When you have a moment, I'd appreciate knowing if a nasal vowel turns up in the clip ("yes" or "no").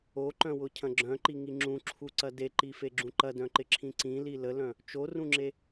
yes